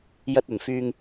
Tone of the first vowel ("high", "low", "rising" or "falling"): low